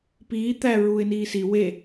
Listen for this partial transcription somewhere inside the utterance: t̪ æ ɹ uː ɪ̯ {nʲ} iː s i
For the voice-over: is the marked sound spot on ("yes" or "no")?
no